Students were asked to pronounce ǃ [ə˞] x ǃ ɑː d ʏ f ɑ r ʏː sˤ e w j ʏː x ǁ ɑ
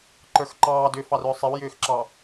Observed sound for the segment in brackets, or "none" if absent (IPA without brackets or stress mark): ə˞